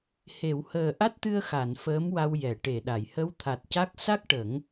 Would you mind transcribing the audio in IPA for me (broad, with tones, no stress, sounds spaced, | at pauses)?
h e˨˩˨ w h əː˨˩ ʔ a˦˥ t̚ t̪ ɨ˧ ə̯ x a˨˩˨ n f əː˧˥ m w a˧ w j ɛ˨˩˨ ʈ e˨˩˨ ɗ a˨˩˨ j h ə˧˥ w t̪ʰ a˨˩ t̚ c a˦˥ k̚ s a˦˥ k̚ ʈ ə˨˩˦ ŋ